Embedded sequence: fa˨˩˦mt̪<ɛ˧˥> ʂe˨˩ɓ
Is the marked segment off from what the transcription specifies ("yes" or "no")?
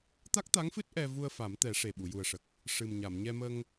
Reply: yes